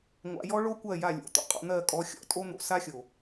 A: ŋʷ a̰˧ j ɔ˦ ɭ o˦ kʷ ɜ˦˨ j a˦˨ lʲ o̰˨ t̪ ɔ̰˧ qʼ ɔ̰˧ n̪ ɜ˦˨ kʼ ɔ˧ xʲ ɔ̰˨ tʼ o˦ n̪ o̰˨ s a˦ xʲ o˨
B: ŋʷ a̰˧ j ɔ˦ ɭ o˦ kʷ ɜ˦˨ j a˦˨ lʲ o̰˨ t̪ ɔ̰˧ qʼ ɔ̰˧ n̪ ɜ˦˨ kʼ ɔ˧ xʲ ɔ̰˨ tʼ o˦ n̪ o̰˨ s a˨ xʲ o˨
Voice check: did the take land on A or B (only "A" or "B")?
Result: A